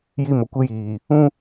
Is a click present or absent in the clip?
absent